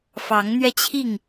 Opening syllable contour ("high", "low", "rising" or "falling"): rising